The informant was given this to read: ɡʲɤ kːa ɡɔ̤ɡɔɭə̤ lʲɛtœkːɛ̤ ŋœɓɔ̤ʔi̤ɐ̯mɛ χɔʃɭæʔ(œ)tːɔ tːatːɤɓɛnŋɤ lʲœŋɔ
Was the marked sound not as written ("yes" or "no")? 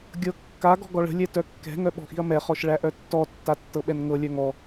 no